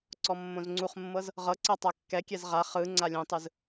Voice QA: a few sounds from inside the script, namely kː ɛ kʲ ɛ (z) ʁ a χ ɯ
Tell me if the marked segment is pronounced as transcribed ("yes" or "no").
yes